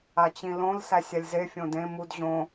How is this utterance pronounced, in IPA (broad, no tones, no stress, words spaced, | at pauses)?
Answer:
at͡ɕĩlõl sæsʲalʲze fʲõdẽ mud ʑõ